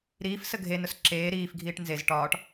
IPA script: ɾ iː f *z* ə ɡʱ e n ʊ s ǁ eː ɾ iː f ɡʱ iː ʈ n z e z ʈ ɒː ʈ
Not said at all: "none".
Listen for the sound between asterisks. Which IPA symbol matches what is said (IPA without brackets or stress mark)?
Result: s